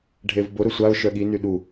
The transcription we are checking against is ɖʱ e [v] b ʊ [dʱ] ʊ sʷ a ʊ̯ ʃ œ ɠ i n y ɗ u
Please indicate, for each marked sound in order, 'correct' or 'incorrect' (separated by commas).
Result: correct, incorrect